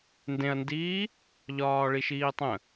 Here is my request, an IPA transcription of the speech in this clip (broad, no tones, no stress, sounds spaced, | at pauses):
n d ẽ ɐ̯ n d iː | ʎ ɒː ɭ i ʃ iː tˤ ə̃